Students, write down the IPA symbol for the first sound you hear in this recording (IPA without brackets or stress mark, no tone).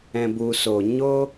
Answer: ɛ̃